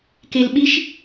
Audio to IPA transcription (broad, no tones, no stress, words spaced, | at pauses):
kelɓiʃ